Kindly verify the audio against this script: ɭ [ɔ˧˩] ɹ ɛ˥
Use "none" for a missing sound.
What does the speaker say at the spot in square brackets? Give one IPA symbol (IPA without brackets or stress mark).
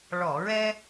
ɔ˧˩˧